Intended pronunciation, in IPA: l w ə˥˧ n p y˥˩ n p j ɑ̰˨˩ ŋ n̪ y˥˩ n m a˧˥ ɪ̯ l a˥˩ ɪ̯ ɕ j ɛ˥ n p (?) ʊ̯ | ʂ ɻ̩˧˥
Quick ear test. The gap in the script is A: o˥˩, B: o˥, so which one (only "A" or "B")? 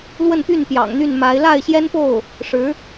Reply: A